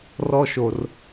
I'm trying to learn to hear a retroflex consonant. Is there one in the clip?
no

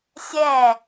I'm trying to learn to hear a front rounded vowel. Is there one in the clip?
no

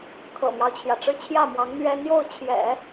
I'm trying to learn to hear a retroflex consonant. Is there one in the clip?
yes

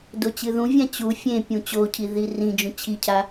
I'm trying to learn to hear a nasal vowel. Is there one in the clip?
yes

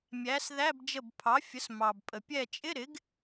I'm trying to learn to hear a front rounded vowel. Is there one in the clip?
no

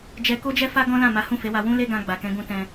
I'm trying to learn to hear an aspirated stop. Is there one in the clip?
no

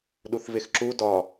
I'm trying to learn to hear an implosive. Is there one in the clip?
yes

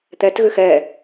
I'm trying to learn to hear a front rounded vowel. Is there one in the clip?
yes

